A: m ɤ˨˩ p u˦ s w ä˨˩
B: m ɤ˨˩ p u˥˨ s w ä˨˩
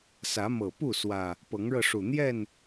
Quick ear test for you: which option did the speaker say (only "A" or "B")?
B